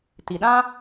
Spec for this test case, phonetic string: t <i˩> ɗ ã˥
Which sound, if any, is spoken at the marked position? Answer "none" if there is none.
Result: i˩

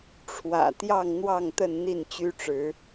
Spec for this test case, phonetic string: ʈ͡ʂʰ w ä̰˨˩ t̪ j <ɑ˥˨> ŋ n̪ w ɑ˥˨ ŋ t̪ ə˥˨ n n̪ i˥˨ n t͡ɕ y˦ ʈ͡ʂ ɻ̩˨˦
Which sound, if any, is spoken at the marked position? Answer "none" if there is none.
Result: ɑ˥˨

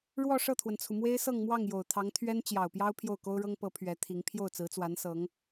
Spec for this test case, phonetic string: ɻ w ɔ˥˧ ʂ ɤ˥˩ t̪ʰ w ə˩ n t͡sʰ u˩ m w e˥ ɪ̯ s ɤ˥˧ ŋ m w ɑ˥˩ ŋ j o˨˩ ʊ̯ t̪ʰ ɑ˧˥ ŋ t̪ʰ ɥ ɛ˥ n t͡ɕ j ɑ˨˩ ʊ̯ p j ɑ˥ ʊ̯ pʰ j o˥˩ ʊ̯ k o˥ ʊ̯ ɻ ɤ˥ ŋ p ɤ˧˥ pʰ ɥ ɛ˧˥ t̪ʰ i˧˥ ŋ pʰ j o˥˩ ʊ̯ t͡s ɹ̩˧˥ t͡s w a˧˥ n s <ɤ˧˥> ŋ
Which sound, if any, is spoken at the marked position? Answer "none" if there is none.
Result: ɤ˧˥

